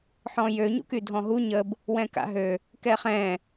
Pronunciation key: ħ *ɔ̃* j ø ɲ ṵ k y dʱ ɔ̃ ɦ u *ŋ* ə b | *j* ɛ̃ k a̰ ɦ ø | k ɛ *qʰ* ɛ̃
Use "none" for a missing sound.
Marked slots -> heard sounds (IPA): ɔ̃, ɲ, w, χ

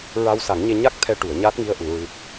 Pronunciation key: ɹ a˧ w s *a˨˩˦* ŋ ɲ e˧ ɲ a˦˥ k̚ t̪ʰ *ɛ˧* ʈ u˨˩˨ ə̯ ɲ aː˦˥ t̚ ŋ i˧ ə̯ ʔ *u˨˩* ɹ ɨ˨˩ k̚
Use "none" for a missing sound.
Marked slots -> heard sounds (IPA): a˨˩˦, ɛ˧, u˨˩˨

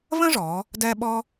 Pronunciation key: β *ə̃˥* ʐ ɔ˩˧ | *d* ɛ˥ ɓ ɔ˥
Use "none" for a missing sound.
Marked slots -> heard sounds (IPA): ə̃˥, d

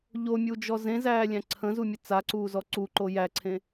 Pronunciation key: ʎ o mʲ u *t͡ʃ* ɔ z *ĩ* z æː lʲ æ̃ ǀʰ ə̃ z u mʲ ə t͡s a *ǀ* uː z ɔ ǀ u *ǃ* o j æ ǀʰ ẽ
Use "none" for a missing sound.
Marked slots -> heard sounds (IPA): d͡ʒ, ẽ, ǀ, ǃ

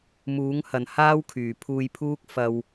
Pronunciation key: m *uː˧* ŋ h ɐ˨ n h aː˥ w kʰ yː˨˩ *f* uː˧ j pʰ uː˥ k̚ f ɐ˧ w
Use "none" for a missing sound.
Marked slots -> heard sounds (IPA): uː˨˥, pʰ

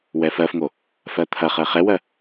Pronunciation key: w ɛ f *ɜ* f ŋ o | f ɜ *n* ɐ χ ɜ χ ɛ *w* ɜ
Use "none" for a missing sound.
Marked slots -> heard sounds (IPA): ɜ, t̪ʰ, w

